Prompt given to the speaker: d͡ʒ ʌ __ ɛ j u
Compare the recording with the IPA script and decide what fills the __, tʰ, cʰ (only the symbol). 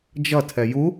tʰ